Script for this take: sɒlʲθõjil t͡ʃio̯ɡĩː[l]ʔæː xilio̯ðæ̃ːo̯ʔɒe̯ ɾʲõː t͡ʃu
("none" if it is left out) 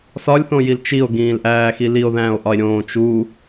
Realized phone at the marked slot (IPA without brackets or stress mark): l